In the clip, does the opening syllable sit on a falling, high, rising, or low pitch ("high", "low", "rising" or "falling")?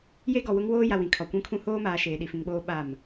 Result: high